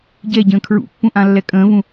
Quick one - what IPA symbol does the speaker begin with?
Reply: ɟ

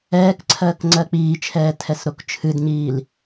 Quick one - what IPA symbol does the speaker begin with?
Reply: ɛː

